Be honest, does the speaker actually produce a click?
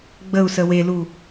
no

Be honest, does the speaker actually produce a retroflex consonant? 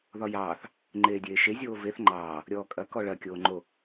yes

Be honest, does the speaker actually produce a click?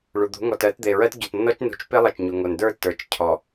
no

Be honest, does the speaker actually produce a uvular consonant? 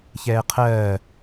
yes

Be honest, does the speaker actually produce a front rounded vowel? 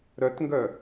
yes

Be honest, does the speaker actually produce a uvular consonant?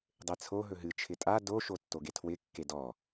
no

